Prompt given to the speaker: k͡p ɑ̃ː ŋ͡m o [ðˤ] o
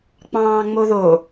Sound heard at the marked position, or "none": ð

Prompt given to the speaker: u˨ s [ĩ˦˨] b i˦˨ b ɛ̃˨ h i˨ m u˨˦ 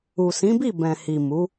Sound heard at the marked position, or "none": ĩ˨˦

